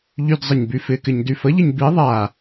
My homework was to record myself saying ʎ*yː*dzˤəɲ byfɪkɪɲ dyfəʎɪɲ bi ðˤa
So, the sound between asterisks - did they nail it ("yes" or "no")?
no